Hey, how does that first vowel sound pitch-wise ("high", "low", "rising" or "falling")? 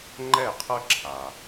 falling